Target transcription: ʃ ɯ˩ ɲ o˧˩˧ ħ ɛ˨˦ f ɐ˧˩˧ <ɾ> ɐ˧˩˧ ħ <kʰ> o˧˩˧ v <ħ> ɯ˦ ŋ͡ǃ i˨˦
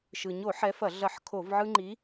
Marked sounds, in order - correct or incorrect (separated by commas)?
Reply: incorrect, correct, incorrect